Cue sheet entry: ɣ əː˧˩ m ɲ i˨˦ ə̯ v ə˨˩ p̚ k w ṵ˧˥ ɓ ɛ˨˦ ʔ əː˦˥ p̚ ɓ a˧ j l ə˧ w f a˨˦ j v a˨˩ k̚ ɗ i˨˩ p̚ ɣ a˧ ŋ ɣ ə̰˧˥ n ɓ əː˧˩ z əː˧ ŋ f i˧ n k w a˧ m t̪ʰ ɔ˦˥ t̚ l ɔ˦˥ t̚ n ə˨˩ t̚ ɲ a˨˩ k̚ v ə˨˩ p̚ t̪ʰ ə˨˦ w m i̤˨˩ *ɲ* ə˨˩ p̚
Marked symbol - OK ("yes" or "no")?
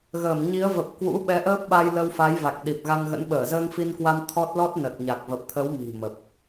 no